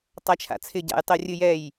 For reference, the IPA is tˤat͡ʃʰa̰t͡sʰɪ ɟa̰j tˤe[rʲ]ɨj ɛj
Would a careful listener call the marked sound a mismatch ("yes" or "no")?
no